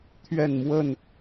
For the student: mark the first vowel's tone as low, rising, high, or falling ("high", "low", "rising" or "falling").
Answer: falling